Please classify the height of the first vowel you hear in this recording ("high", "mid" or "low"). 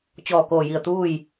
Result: mid